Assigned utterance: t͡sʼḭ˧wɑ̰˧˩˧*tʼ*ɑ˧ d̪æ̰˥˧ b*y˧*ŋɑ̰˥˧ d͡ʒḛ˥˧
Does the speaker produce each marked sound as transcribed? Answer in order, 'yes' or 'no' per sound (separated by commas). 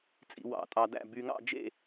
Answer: yes, yes